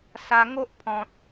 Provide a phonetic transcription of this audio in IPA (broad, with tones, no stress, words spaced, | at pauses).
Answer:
sa˧ŋo˦ʔpʰɔ̃˨t̚